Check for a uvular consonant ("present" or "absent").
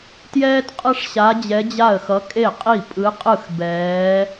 present